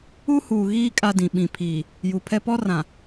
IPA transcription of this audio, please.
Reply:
u˦ h uː˨ ɣ iː˦ kʼ a˦ d ĩ˨ ɓ ĩ˨ pʰ iː˨ | j u˨ pʰ ɛ˦ p ɔ˦ r ã˨

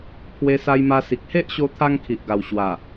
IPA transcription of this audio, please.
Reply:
pʰ w e˧ s a˧ j m a˧ s i˨ k̚ h e˦ ʔ ɕ o˧ t̪ʰ a˧ ŋ kʰ i˨ ʔ ɡ a˨˩ w ɕ w a˨˩

